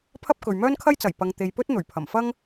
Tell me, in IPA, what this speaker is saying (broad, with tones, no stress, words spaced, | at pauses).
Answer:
pʰɐ˥p̚ kɵ˨ɥmœː˥nkʰɐ˥jt͡sɐ˨˩j pɐ˨ŋt̪e˨jpɵ˥t̚n̪ɵ˨˩ɥ pʰɐ˨˩mfɐ˥ŋ